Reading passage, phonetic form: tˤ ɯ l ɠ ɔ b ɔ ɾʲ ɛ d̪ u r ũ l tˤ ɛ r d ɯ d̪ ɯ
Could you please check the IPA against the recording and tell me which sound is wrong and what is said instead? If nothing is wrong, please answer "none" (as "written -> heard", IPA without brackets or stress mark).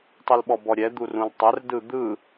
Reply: ɠ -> ɓ